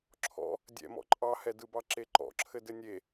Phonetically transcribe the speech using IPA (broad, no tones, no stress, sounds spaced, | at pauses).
ǁʰ ɔ̰ | dʲ ɛ̰ m ɔ̰ ǃʼ ɑ h ɛ d ɯ b ɑ ǁ e ǃ ɔ̰ ǁʰ ɘ d ɘ nʲ e